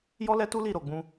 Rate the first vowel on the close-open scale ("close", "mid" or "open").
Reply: mid